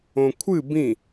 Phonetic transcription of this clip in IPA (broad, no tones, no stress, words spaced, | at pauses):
õkʷʰɨ bĩ